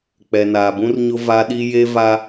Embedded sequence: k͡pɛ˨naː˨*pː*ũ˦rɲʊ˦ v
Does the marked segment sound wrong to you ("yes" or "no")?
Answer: yes